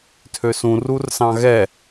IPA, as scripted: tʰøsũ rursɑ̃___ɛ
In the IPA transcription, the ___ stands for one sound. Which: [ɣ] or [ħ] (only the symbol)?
ɣ